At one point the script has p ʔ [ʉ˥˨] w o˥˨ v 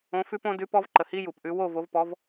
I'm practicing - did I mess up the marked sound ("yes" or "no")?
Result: yes